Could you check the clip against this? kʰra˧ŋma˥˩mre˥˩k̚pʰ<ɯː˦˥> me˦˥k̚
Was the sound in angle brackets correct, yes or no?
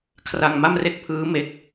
yes